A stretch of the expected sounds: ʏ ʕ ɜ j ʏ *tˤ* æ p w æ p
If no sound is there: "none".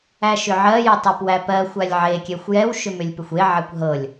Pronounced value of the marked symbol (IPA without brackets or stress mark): tˤ